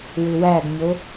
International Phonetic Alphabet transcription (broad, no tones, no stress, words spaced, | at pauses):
wʏwæɡɲo